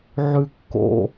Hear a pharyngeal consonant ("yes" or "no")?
yes